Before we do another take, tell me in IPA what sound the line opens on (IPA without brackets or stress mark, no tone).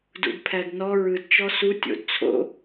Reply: d